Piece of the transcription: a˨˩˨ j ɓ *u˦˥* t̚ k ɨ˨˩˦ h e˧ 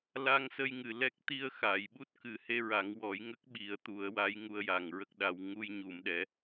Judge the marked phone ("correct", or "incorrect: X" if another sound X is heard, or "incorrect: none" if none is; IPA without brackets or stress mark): correct